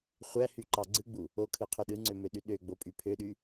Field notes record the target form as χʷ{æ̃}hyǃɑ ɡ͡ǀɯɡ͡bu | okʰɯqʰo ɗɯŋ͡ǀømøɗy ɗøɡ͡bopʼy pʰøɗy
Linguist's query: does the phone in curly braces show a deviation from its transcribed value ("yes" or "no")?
yes